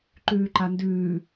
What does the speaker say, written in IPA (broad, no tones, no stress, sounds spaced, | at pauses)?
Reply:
ǃ ʉː ǃ a n d ʉː